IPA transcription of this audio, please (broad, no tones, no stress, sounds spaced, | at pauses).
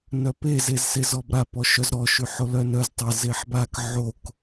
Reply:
n œ p e z e z s e z ɔ b ɾ a p ɔ ʃ œ z ɾ ɔ ʃ y ħ o l œ n œ z tˤ e z e ħ b a k ʕ o k